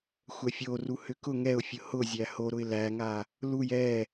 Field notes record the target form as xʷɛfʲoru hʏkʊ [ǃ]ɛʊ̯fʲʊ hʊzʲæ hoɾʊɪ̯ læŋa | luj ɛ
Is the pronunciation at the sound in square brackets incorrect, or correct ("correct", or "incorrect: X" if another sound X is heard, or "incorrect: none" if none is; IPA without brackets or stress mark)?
incorrect: ŋ